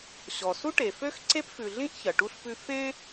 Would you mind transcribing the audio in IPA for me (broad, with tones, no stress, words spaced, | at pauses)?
ɕɔ˩su˥ʈe˩fø˥x ǀe˥pfʉ˨ɮĩ˥ʔ çɐ˩ʈu˦ɬpʉ˦ fẽ˥